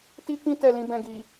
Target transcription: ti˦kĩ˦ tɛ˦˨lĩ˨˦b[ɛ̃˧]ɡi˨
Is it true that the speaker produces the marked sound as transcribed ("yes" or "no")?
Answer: yes